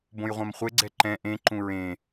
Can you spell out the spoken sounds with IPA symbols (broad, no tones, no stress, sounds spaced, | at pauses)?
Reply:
b õ j ʁʷ ã m χʷ e ɡ͡ǀ ɛ ǃ ɛ̃ ʔ ẽ ǃ ũ ɹ ẽ